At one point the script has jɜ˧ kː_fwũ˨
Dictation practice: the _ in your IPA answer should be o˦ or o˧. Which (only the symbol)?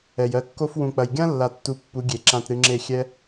o˧